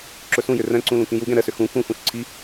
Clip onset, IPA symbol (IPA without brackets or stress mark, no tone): ǁ